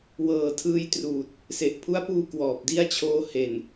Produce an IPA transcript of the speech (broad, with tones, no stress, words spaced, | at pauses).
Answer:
wɤː˨˩tʰɯː˧jtruː˨˩t̚ | se˨˩ʔpʰu˦˥a̯puː˧ kwɔː˨˩p̚di˥˩a̯t͡ɕʰoː˦˥ he˨˩n